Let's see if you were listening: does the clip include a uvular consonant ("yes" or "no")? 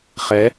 yes